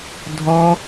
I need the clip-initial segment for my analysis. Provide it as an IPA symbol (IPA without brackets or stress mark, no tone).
dʱ